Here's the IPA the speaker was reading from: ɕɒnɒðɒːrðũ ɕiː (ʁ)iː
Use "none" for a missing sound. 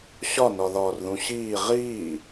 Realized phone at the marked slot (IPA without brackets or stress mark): ʁ